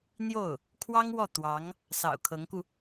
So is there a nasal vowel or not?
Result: no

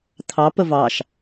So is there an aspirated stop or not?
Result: yes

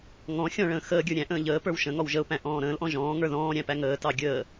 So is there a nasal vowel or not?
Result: yes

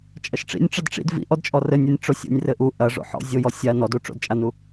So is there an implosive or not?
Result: no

